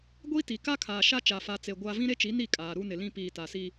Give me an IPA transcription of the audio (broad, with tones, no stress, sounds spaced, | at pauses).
ɡʷ i˦ t i˨ k a˦ kʰ aː˨ ʃ a˦ t͡ʃ a˨ f a˨ t͡s e˨ ɡʷ a˦ v ĩ˦ ɾ e˦ t͡ʃ i˨˦ n i˦˨ kʼ aː˨ ɾ u˦ n ɪ˨ l ĩ˦ p iː˨ t a˨ s i˦